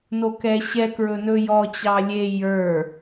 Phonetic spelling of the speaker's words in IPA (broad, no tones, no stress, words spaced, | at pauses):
nokɛɕɛkɹɵ nɵjɔt͡ɕɑ lʲe jə˞